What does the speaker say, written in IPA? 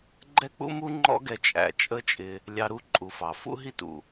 ɡ͡ǃ ɛ˥ k͡p ṵ˥ m u˥ ŋ͡ǃ ɔ̰˥ ɡ ɛ˧ t͡ʃʼ æ̰˩ t͡ʃʼ ə˥ t͡ʃʼ ɪ˧ | lʲ ɑ˧ ɾ u˥ ǃʼ u˩ f ɑ˩ f ṵ˥ ɦ i˥ t ṵ˩

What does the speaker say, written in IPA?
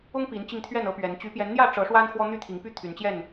ʊ˦ ŋ p i˨˦ n t͡ɕ i˧ ŋ t̪ʰ ɥ ɛ˥˨ n ɤ˦ p ɥ ɛ˨˦ n t͡ɕ y˨˦ p j ɛ˨˦ n n̪ j ä˥˨ ʈ͡ʂ ɤ˨˦ ʂ w a˦ n x w ɔ˦ n̪ y˥˨ t̪ʰ i˨˦ ŋ p y˦ t̪ʰ y˨˦ n t͡ɕ j ɛ˥˨ n

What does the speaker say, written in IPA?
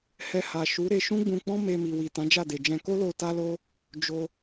h ɛ˧ h a˨ ʃ u˨˦ ɾ e˧ ʃ ũ˦ ɡ͡b ũ˧ k͡p ɔ̃˦ m e˧ m i˨ w i˨ t ã˨˦ d͡ʒ a˦˨ d e˨ d͡ʒ ɛ̃˧ k o˦ l o˧ t a˦ l o˦ | d͡ʒ o˧

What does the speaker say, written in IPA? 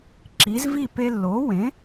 ǁ i˩˥ z v i˥˨ p e˧ lː o˩˥ w ẽ˩˥

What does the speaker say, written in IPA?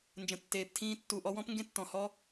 n d͡ʒ ə̃˨ tː eː˨ p tʰ ĩː˧ tː u˨ ʔ ɔ˧ w ɔ̃˦ p ŋ ɡ ẽ˦ tː ɔ̃˨ h ɔ˦

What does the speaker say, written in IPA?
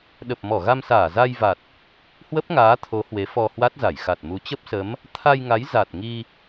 ɗ ə˨˩ p̚ m ɔ˧˩ ɣ a˧ m s aː˧˩ z a˧ j v a˨˩ t̚ | h w ə˦˥ p̚ ŋ aː˨˦ t̪ʰ o˨˦ h w e˨˦ f ɔ˧ h w a˦˥ t̚ z a˧˩ j x a˨˩ t̚ m u˨˦ t͡ɕ ə˦˥ p̚ s ə˨˦ m | t̪ʰ a˧ j ŋ a˨˦ j z a˨˩ t̚ ŋ i˧

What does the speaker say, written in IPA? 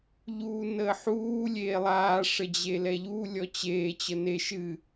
ʎ uː n əː ħ uː lʲ eː lˠ aː ʂ ə d͡ʑ e l ɛ ʎ u lʲ ɔ t͡ɕ eː t͡ɕ ə n e ʃ ɨ

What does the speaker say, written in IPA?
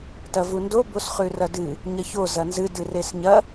t ɐ v u n d o b o s χ ʉ r ɐ d ɨ | ɲ ɐ ç o z ɐ n z ɨ d ɨ r e s ɲ ɐ

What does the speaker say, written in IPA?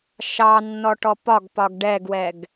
ʃ ɑ nː ɔ ʈ ɔ p ɒ ɡ p ɒ ɡ ɖ ɛ ɡ w ɛ ɡ

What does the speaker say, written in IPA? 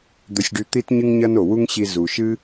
d̪ ɵ˧ sʲ ɖ ʉ˧ t̪ i˥ t ɲ ɨ˥ ŋ ɲ ɐ˥ n o˩ w u˥ ŋ ɕ i˧ z u˩ ʃ ɨ˥

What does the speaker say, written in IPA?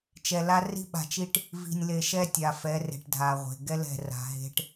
t͡ʃ ɛ˨ l a˦ r i̤˦ ɓ a̤˨ t͡ʃ i˦ ʈ | v i̤˨ nʲ l e˨ ʃ ɛ˦ tʲ a˨ f ɛ˨˦ r e̤˨ ʈ dʱ a˨ ʁʷ e̤˨ ɡ ɛ˦ l ɛ̤˨ r a̤˨ ɦ e̤˦ ʈ

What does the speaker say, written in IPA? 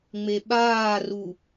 ŋ͡m e ɓ aː r u

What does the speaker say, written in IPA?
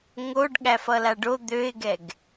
ŋ o ɖ ɠ æ f ʌ l a ɖ o d̪ ø ɪ̯ ɡ ɛ ɡ

